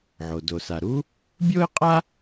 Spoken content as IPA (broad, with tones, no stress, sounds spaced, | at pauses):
ʕ o˩ d o˩ s a˩ ɾ u˥ | bʲ oː˥ ɪ̯ qʼ a˥